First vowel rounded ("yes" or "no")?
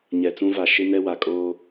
no